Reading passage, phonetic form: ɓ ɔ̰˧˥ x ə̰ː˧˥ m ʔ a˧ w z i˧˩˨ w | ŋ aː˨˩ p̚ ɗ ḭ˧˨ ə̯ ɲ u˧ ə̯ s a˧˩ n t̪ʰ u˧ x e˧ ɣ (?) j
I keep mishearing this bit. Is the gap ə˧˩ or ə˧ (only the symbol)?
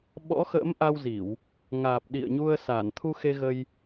ə˧